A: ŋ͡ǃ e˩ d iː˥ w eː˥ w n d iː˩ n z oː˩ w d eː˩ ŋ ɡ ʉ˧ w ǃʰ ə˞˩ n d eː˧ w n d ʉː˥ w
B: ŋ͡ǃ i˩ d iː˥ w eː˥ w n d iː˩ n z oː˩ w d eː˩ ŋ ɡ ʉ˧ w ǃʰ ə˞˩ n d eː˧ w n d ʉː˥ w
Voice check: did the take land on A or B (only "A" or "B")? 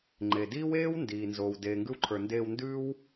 A